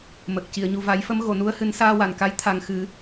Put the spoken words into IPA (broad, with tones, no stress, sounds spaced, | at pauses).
m əː˨˩ k̚ c i˨˩˨ ə̯ ɲ u˨˩ v a˨˩˦ j f ə˧˥ m ɣ o˨˩˨ n u˧˥ ə̯ h ɨ˨˩˦ n s aː˧ w a˨˩˨ n k a˧˥ j t̪ʰ a˨˩ ŋ x ɨ˨˩˦